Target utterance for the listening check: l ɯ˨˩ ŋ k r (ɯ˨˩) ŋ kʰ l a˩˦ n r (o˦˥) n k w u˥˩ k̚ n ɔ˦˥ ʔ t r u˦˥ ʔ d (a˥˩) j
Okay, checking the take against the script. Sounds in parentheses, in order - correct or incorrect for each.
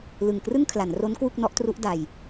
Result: incorrect, correct, incorrect

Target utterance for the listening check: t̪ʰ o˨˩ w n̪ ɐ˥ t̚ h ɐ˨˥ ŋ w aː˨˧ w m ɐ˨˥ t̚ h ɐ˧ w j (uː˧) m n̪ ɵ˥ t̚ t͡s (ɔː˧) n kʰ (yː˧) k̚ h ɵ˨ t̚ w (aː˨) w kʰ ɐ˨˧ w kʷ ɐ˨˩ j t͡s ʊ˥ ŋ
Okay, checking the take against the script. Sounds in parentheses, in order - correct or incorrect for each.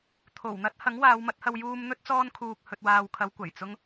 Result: correct, incorrect, incorrect, correct

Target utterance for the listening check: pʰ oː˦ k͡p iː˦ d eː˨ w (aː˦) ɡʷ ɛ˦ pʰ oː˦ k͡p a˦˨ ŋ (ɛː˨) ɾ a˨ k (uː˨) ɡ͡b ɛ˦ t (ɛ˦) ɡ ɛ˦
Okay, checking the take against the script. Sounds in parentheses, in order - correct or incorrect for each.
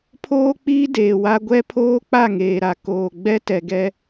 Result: incorrect, incorrect, incorrect, incorrect

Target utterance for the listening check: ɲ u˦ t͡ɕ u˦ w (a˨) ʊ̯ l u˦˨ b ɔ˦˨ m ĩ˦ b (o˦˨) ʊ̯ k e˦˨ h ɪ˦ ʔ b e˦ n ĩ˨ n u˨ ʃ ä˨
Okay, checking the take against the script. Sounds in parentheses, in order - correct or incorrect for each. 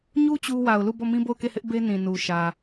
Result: correct, correct

